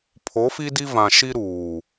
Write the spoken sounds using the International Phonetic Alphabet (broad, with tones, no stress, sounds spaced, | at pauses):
pʰ o˨˦ f i˦ d i˦ v ã˨ ʃ i˦ ɾ uː˨